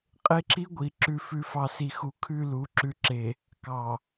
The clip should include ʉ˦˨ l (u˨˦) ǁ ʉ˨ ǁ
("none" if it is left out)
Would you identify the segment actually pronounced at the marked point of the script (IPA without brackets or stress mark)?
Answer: u˨˦